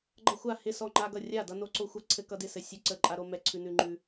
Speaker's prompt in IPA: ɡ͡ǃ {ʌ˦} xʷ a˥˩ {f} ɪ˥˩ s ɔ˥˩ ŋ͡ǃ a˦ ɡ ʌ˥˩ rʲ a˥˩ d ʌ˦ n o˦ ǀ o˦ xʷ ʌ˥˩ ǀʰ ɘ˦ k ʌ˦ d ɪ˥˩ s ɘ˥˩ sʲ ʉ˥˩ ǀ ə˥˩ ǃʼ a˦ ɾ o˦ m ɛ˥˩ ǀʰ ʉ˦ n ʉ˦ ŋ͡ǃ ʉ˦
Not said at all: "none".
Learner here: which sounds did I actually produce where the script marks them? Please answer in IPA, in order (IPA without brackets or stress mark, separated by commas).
ʌ˦, h